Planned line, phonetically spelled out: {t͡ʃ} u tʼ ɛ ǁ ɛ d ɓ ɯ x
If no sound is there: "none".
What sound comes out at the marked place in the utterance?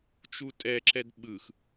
t͡ʃ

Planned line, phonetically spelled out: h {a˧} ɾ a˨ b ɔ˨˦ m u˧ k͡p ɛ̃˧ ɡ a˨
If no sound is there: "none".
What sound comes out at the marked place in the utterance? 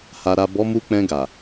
a˨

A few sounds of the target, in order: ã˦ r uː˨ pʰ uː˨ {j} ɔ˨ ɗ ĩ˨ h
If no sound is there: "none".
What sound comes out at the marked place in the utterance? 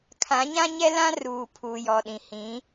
j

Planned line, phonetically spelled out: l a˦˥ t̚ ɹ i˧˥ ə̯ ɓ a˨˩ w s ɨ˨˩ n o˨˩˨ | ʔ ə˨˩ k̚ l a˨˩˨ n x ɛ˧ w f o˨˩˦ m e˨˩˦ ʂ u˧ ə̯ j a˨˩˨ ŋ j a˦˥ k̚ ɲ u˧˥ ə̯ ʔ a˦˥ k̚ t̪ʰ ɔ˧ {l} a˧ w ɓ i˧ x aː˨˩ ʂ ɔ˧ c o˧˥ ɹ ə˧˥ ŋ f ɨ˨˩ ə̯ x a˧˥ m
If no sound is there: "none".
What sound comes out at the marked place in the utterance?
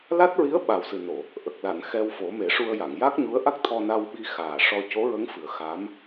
n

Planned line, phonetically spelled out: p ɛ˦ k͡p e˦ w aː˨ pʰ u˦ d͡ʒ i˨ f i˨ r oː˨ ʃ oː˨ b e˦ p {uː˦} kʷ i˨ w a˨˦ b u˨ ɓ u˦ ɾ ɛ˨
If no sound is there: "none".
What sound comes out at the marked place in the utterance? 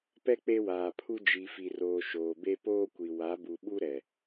oː˦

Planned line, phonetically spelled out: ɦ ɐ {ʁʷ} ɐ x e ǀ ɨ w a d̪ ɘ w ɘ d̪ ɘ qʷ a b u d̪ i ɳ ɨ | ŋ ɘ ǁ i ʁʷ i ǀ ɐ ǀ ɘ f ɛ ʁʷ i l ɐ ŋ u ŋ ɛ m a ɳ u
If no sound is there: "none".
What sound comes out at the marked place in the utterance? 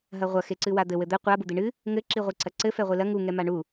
ʁʷ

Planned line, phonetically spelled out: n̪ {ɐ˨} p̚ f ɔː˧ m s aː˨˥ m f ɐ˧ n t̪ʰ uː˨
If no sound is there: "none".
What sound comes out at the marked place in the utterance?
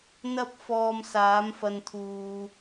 ɐ˥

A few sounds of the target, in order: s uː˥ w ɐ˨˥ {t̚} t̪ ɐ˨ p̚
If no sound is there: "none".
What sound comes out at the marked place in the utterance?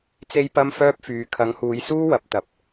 p̚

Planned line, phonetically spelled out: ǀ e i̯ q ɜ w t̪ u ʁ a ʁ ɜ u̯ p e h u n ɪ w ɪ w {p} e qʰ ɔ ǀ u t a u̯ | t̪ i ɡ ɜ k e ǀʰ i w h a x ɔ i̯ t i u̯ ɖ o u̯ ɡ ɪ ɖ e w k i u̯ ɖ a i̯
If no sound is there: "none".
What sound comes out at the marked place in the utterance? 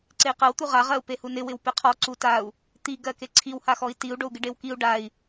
p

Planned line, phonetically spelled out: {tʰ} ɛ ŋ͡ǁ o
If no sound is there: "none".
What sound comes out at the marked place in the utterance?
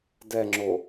d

